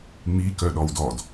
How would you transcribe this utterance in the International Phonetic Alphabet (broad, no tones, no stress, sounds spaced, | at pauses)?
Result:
ŋ͡m i k œ ɗ ɔ w d ɔ d